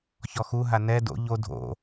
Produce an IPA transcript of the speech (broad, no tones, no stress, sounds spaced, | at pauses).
ç ɔ x u ɦ a n ɛ d o̰ ʎ o dʱ o̰